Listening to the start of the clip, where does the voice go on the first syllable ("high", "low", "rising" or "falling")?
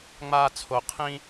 high